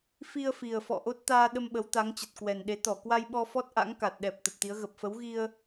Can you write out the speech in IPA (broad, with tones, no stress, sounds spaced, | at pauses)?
f i˧ ə̯ f i˨˩ ə̯ f ɔ̰˧˨ ʔ o˦˥ t̚ t̪ aː˧ ɗ ə˧ m ɓ ə˨˦ w t̪ a˨˦ ŋ t͡ɕ ə˨˩ t̚ k w ɛ˨˩ n ɗ e˨˦ t̪ ɔ˧˩ k w a˧ j ɓ ɔ˧ f ɔ˦˥ t̚ ʔ a̰˧˥ ŋ k a˨˩ t̚ ɗ ɛ˨˩ p̚ t̪ ə˨˩ p̚ t̪ i˨˦ ə̯ ɣ ə˨˩ p̚ f ə˨˦ w ɣ i˧ ə̯